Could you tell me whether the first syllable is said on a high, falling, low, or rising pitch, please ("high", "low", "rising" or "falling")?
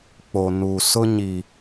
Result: low